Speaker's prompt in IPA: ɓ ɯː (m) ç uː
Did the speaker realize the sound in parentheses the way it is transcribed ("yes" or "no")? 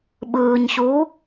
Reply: no